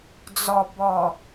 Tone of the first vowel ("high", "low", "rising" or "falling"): low